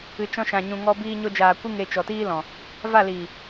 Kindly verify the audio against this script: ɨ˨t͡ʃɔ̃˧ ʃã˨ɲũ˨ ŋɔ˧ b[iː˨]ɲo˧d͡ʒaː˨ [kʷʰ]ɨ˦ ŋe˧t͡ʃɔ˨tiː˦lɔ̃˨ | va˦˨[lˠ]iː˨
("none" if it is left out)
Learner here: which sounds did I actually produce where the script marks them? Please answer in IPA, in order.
iː˧, kʷ, l

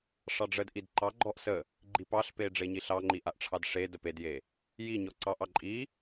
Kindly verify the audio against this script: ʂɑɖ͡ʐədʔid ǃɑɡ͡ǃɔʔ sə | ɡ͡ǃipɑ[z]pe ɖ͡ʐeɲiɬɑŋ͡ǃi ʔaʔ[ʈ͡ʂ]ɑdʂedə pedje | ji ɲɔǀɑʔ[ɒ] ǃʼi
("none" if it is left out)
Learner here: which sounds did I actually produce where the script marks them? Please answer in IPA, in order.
ɬ, ʈ͡ʂʰ, ɑ

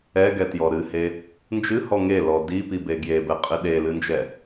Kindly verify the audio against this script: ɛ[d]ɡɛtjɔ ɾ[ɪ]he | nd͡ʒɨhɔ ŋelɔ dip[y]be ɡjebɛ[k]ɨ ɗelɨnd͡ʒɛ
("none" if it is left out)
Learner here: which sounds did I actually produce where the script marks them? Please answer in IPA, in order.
none, ɨ, i, qʼ

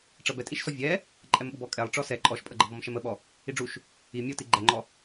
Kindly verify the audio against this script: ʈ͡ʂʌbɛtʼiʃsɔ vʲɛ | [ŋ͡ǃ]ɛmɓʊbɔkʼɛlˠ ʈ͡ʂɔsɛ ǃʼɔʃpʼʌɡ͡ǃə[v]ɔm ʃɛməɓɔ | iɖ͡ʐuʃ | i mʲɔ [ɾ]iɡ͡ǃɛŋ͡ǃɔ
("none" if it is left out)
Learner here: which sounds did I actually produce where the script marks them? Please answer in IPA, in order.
ǃʼ, v, t

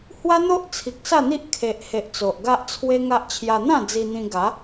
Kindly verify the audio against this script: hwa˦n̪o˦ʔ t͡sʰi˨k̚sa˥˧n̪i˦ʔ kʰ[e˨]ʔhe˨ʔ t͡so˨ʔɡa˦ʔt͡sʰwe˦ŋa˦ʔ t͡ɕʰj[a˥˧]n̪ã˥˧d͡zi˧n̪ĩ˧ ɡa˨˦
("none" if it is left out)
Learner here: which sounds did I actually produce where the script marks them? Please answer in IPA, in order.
e˨, a˧

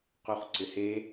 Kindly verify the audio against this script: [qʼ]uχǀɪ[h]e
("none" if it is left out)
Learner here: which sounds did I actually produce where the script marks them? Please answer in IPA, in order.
q, h

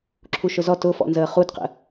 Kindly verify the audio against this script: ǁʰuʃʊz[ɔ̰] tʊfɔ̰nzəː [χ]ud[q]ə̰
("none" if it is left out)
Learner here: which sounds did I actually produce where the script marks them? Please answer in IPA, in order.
ɔ, χ, q

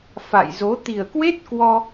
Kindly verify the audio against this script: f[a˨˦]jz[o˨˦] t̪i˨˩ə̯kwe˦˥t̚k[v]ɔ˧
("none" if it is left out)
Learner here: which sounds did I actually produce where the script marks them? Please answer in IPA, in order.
a̰˧˨, o˨˦, w

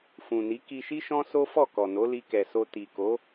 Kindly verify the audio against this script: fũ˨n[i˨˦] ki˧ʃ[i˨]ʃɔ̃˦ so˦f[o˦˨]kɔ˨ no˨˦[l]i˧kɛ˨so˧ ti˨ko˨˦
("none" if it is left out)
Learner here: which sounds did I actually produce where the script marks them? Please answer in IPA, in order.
i˨˦, i˦, ɔ˦˨, l

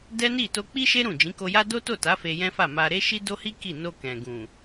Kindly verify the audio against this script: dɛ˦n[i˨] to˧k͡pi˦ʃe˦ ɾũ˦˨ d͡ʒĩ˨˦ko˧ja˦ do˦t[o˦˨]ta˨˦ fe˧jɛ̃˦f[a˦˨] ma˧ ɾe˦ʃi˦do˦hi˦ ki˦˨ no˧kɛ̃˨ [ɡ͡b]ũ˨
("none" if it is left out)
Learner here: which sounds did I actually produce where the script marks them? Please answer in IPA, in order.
i˦˨, o˦˨, a˦˨, ɡ

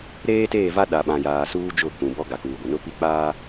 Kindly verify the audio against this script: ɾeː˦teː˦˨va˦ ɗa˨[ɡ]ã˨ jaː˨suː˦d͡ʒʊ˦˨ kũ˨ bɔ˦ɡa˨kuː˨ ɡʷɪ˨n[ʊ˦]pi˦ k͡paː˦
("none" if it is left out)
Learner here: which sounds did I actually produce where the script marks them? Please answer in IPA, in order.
ɓ, ʊ˦

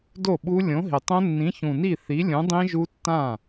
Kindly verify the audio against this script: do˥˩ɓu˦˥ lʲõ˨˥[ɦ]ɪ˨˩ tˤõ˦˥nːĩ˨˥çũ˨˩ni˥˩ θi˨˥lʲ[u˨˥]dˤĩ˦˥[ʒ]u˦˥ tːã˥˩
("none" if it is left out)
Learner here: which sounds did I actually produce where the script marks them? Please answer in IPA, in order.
ɦ, ũ˨˥, ʒ

